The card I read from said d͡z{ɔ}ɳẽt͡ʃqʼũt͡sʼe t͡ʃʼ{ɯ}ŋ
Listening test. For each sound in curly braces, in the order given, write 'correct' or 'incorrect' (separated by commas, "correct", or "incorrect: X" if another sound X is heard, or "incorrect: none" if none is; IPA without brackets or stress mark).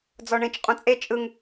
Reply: correct, correct